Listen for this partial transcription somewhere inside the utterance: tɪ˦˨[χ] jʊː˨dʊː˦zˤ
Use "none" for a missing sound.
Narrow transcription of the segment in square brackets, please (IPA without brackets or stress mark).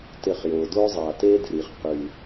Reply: χ